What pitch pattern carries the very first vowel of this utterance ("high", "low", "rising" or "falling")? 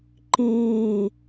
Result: falling